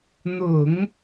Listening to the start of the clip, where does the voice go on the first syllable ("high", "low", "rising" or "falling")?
low